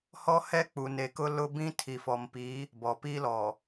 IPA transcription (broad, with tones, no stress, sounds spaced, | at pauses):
h ɔ˦ h ɛ˦ k͡p u˨ n e˨ k ʊ˦ l ʊ˦ b ĩ˦ tʰ i˨ f ɔ˨ m p i˨˦ | b ɔ˨ p iː˦ l ɔ˨